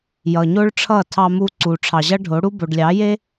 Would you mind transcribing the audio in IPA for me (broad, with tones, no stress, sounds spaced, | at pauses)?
j ʌ˨ ɲ o˦ ɭ ʈ͡ʂʰ ʌ˦˨ tʰ ɑ˧ m u˧ ǀ u˨ ʈ͡ʂʰ ɑ˨ ʑ ʌ˦ ɖʱ o˨˦ ɽ u˦ b o˨ ɖ lʲ ɑ˨˦ j e˦